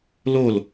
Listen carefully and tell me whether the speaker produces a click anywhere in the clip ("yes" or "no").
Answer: no